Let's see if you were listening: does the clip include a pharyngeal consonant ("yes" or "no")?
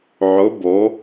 yes